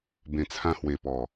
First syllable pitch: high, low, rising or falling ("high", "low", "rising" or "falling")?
low